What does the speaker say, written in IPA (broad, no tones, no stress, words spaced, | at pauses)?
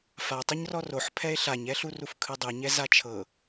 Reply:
fatˤɯɲ rɔroħ pʰɛe̯ɬaɲɛɬu rufkʰɯdˤuɲɛ zat͡ʃʰɤ